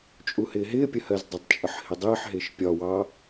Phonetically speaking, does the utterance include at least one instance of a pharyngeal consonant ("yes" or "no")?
yes